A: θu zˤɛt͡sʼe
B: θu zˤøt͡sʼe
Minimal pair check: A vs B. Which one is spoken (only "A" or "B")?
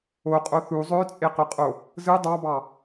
B